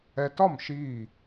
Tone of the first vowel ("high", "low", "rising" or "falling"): high